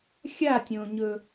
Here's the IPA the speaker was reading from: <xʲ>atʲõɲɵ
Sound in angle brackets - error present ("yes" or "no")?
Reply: no